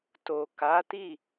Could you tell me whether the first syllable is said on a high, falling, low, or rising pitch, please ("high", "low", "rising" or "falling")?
low